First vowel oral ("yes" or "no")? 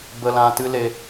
yes